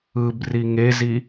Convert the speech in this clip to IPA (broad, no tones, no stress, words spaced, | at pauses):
ɯb riŋezi